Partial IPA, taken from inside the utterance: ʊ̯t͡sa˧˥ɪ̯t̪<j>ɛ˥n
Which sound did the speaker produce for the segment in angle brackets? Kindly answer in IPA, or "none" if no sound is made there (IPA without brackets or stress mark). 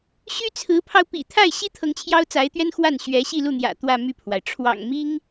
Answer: ɥ